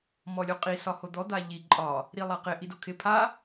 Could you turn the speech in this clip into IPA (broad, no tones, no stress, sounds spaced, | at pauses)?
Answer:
m ɔ lʲ o qʼ i s ɒ h o d̪ ɔ d̪ a ʎ i ǃʼ ɒ | ɾ i lˠ a q ɪ ʔ i d o kʰ ɪ pʰ a